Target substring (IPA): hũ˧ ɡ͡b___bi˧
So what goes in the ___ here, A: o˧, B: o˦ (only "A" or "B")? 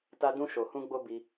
B